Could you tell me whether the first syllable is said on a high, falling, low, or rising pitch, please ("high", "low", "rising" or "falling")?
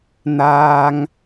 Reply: high